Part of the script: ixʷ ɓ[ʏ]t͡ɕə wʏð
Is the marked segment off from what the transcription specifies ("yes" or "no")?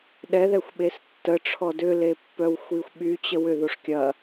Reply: yes